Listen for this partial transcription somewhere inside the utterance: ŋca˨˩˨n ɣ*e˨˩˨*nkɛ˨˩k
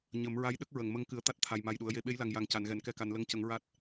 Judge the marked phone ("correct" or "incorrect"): incorrect